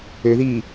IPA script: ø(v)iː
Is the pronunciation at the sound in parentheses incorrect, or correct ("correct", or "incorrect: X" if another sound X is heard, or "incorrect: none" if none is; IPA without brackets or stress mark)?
incorrect: ð